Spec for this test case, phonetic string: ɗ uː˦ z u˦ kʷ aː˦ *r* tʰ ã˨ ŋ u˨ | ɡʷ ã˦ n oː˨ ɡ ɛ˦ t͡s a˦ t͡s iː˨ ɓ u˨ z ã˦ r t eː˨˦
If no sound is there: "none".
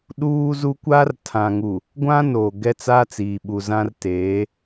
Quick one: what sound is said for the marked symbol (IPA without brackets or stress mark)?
r